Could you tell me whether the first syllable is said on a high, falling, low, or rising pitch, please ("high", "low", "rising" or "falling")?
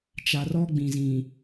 low